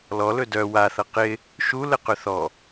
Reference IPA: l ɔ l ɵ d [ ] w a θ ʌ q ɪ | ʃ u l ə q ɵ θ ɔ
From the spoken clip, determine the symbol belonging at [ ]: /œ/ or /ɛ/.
œ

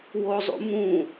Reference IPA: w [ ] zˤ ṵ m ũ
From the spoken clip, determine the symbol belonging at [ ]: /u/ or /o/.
o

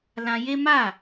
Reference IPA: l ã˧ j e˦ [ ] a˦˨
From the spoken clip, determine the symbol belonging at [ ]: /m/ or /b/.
m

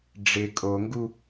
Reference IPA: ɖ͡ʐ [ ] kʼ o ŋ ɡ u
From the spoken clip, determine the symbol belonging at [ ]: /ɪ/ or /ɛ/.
ɪ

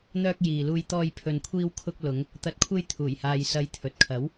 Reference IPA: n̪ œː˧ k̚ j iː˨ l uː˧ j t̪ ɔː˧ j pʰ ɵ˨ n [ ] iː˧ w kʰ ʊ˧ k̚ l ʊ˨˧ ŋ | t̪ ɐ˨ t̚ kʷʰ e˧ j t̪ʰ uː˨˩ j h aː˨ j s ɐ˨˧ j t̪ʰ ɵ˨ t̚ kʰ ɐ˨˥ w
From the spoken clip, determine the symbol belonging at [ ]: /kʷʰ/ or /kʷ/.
kʷʰ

